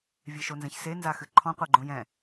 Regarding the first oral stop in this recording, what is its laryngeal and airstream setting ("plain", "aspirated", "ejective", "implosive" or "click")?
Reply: click